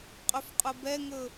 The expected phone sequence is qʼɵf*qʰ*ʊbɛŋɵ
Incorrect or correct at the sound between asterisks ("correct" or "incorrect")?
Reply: incorrect